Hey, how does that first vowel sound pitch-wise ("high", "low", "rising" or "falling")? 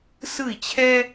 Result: falling